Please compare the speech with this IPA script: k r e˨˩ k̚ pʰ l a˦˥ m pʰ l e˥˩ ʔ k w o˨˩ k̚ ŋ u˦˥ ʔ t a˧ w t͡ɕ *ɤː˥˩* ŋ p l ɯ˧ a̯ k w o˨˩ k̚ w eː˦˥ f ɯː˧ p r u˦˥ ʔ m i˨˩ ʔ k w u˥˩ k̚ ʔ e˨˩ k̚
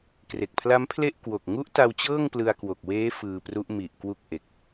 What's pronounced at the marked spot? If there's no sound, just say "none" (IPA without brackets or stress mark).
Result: ɤː˥˩